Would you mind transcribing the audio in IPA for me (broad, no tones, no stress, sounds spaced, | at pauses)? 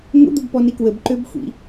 ŋʷ ə̰ d̪ ʊ b p ɔ n i k w ə b ǃ ø b xʷ ḭ